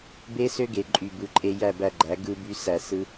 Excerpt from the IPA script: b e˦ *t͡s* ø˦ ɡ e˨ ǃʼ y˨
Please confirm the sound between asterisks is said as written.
no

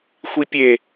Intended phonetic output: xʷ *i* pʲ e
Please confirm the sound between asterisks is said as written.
yes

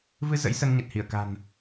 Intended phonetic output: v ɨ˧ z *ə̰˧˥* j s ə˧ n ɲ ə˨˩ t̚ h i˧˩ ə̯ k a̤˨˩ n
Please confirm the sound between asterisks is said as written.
yes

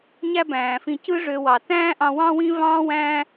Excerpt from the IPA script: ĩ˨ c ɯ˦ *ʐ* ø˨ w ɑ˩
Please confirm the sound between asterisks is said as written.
yes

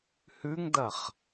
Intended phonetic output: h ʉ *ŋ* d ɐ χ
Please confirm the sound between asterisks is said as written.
yes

